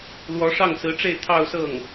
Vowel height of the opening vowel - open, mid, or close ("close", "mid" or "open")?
mid